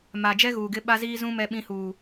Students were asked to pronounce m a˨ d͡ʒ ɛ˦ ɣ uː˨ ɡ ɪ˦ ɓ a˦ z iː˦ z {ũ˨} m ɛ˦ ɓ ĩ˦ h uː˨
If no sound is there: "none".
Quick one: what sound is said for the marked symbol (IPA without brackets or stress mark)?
ũ˦